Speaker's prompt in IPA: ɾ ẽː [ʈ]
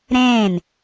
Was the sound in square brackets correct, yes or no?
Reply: no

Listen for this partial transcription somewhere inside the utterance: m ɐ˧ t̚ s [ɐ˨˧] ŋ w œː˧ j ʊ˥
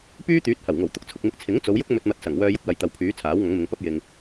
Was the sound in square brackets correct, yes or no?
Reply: no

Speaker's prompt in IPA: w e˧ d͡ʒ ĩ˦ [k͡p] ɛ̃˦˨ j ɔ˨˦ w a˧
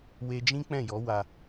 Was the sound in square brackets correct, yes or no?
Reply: yes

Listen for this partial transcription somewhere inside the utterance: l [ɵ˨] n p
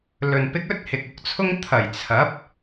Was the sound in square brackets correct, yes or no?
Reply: yes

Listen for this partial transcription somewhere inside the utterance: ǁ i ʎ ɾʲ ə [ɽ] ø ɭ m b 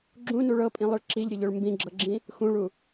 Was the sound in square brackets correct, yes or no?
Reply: no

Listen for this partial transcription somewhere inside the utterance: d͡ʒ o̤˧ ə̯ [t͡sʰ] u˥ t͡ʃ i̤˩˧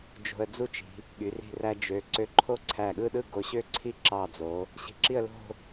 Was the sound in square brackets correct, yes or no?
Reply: no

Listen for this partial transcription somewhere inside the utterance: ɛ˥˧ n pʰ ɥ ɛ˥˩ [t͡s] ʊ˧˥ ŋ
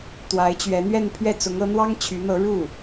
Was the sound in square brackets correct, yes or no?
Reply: yes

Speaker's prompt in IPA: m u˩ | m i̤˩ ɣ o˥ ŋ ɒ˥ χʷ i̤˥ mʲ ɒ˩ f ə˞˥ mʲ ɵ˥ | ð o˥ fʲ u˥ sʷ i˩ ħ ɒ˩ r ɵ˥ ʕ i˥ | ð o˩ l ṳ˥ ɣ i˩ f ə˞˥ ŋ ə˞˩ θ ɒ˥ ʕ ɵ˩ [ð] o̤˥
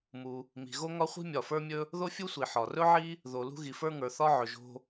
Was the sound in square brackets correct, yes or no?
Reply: no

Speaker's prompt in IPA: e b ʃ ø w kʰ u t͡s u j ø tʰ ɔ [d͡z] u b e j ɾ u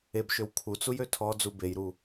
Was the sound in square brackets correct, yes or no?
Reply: yes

